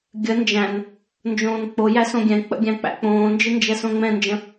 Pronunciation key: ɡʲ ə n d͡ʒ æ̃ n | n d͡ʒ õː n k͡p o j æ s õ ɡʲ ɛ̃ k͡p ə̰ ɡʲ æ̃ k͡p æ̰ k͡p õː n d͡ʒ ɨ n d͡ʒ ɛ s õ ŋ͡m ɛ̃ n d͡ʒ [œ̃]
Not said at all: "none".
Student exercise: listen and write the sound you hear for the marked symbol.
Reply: ə̃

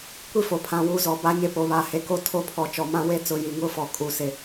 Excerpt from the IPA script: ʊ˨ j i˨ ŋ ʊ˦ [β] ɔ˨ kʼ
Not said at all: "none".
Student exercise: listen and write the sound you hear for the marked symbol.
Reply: f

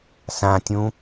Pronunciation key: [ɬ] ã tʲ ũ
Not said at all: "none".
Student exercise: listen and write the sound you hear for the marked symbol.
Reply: s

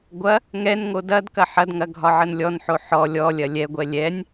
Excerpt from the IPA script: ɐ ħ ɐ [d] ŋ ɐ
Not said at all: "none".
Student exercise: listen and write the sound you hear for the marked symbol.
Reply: d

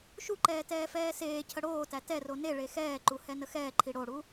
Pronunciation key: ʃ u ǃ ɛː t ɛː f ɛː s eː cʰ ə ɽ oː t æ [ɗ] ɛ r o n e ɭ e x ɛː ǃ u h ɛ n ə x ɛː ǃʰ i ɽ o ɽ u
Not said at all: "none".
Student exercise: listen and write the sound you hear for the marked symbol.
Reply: t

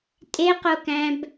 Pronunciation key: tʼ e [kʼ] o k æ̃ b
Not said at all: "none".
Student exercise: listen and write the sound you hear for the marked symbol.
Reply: q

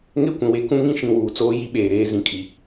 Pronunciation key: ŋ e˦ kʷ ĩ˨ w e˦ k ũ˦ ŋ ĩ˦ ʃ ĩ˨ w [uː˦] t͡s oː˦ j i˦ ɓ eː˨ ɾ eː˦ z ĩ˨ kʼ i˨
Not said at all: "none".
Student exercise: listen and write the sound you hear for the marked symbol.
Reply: uː˨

